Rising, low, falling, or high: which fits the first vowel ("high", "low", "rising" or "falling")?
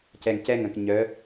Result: low